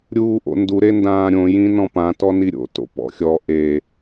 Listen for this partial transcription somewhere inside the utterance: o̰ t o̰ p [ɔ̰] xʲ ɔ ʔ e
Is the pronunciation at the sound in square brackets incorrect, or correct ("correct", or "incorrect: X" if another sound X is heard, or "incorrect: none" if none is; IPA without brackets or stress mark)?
correct